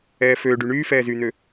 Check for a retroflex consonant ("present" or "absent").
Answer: present